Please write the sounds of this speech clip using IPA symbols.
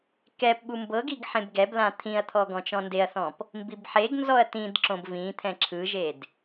k ɛ p ɓ u m b ɤ ɡ i ɡ ħ ẽ b ɡ ɛ b l ã t̪ʰ ĩ ɐ̯ t̪ʰ ɔ ɡ ɔ̃ t͡ʃ ɔ̃ n d e ɐ̯ θ ɔ̃ p | m b i b ħ e ɡ n z ɔ ɐ̯ t ĩ d ǁ õ b v ĩ t̪ʰ ɛ̃ ǁʰ ɯ ʒ e d

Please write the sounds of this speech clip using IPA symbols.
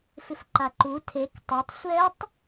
f ɪ f ǃ a ǃ u tʰ e k tˤ e tˤ sʷ ɛ tˤ

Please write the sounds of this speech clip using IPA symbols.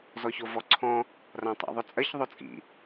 z ɔ ç o v ɔ ǀʰ ɔ̃ | r ã tˤ a̰ ðˤ ɵ t͡sʼ ɜ ç ðˤ o t͡sʼ ḭ

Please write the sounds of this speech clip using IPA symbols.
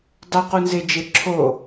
dˤ o q u n z e d͡ʒ e ǁʰ o

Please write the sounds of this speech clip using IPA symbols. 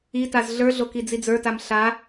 i t a z ɮ ə˞ ɮ o k i d͡z i d͡z ə˞ t a m ɬ a

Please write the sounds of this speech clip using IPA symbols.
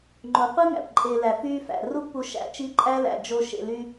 ŋ͡ǃ o˨ qʷ ɯ˦ ŋ æ̰˨ p ǃʼ e˨ l æ˨ f yː˦ f æ̰˨ r u˦ ɡ p u˧ ʃ æ̰˧ t͡ʃ i˦ ǃʼ æ˦ l æ̰˨ d͡ʒ o˦ ʃ ḛ˧ l y˦

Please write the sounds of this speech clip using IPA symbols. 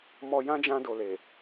m ɔ˧ j ã˦ d͡ʒ ã˧ d o˨ l e˨

